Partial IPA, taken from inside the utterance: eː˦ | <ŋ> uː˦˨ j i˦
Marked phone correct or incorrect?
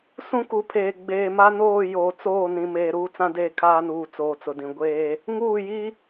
correct